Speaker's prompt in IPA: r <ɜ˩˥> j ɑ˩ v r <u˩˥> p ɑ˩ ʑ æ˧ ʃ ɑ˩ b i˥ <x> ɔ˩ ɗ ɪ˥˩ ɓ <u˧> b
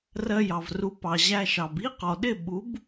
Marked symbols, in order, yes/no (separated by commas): no, yes, no, no